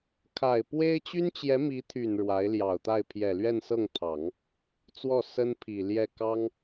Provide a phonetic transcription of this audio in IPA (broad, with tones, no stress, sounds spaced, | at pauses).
kʰ a˨˩ ɪ̯ p w e˥ ɪ̯ t͡ɕ y˥ n t͡ɕ j ɛ˧˥ m i˧˥ t̪ʰ y˨˩ n ɻ w a˧˥ ɪ̯ l j ɑ˨˩ ʊ̯ t̪ a˥˩ ɪ̯ pʰ j ɛ˨˩ l ɥ ɛ˥˧ n s ɤ˥˩ ŋ t̪ʰ ɑ˨˩˦ ŋ | t͡s w ɔ˥˩ s ə˥ n pʰ i˨˩ l j ɛ˥˩ k ɑ˥ ŋ